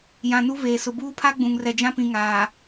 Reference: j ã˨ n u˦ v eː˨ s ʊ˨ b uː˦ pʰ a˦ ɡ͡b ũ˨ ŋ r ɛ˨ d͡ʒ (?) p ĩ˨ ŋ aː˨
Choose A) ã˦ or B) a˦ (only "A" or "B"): A